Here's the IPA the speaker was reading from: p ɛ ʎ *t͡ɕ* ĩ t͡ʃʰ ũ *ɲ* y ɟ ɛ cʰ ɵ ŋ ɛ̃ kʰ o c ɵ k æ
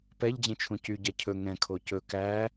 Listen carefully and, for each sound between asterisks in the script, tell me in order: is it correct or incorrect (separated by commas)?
incorrect, incorrect